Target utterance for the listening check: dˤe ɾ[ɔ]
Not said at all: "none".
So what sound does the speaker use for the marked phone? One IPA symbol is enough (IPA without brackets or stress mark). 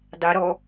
ɔ